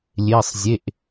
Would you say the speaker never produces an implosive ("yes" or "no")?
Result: yes